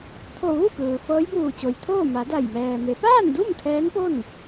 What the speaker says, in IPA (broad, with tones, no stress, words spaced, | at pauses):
t̪ʰo˧˩ ʋu˥˨kɯː˩ fɤː˧˥jbuː˧˩t͡ɕo˩jt̪ʰoː˥˨ ma˩˧da˧˩j mɛː˩me˩˧ paː˥˨ndu˥˨m t̪ʰɛː˧˥npo˥˨n